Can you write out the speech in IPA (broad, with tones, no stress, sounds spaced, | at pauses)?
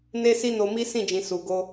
n e˦ s i˦ n o˧ m i˦ s ĩ˦˨ d͡ʒ ĩ˨ s u˨ ɡ o˧